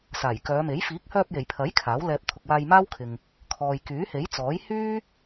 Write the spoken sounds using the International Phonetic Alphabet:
s aː˨˩ j k œː˨˧ m e˨˥ j f iː˨˥ k̚ h œː˧ p̚ j e˨˩ j pʰ ɐ˨˥ j kʰ aː˨˥ w l ɛː˧ p̚ t̪ʰ ʊ˨ k̚ w aː˧ j m aː˥ w kʰ ɪ˨ ŋ | kʰ ɔː˨ j k yː˨˥ h e˨˥ j t͡s ɔː˨˥ j h yː˥

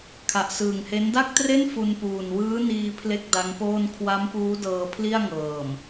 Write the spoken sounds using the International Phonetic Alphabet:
kʰ a˨˩ ʔ s ɯː˨˩ ŋ h e˦˥ n d a˥˩ k̚ t r e˥˩ n f u˧ n p uː˨˩ n w ɯː˦˥ n iː˧ pʰ l e˥˩ k̚ d a˦˥ ŋ p oː˥˩ n kʰ w a˦˥ m p uː˦˥ d ɤː˧ pʰ l i˥˩ a̯ ŋ ɤː˨˩ m

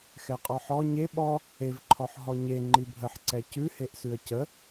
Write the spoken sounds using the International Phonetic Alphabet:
x ɛ qʼ ɔ ħ ɔ ɲ e ɓ ɔ | e v ǃʰ ɔ ħ ɦ ɔ ɲ e ŋ͡ǃ i bʱ ə ħ ǀ ɛ c ʉ h e ʔ s ʉ ə̯ c ə

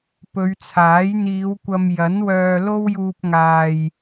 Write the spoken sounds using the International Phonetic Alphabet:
p ɵ˨˧ ɥ t͡sʰ aː˨˥ j n̪ iː˨˧ w kʷ ɐ˧ m j ɐ˨˥ n w œː˨ l o˥ w j uː˧ p̚ ŋ aː˨ j

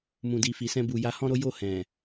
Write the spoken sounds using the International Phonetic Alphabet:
m ũ˨ d i˨ f i˨ s ɛ̃˧ b u˨ j a˧ h ɔ̃˦ ɾ o˦ j o˦˨ h ɛ̃˨

